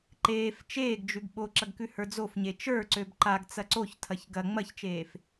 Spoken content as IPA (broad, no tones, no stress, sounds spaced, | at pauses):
ǃ eː f t͡ʃ eː ɡ d͡ʒ ʉ ɡ ɓ o ǁ ɐ ɡ k ʉ h ə˞ d͡z o f ɲ e t͡ʃ ə˞ ǀ ø b ǃ a ɡ t͡s ɐ ǀ o ç tʰ ɐ ç ɡ ɐ ŋ͡m ɐ ç t͡ʃ eː f